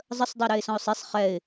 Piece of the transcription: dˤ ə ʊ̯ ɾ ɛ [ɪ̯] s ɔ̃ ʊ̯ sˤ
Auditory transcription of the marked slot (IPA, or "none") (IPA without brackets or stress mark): ɪ̯